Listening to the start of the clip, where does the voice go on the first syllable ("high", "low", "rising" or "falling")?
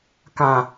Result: low